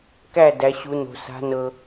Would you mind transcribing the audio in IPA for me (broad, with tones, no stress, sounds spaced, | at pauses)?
k æ˥˨ d æ˨˦ ɕ u˨˦ n o̤˨ s a̤˨˦ n ɤ˨